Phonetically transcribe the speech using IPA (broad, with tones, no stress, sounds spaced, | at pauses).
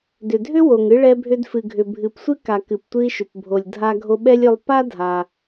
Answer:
d ʏ˩ dʱ ʏ˥ w o˩ ŋ ɨ˧ ɭ ɛ˧ bʱ ʏ˧ d f ɨ˩ ɡʱ ʏ˩ bʱ ɨ˩ p sʷ ɨ˥ k a˩ k ɨ˩ p tʷ ɨ˧ i̯ ʃ ʏ˩ p bʱ o˩ lʲ dʱ a˧ ɡʱ o˧ ɓ ɛ˥ lʲ ʏ˧ lˠ p a˥ dʱ a˩